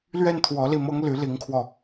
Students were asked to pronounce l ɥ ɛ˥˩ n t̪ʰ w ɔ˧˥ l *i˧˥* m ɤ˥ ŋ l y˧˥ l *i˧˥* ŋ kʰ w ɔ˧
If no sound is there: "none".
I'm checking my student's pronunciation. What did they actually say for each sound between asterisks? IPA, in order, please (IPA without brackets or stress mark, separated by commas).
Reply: i˥˩, i˧˥